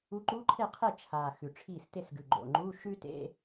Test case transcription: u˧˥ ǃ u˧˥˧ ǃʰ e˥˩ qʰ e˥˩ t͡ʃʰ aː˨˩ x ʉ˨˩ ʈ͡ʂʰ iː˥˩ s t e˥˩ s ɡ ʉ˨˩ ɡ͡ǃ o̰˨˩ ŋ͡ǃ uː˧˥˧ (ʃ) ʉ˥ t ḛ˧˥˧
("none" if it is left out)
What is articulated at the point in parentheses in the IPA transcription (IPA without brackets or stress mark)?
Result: ʃ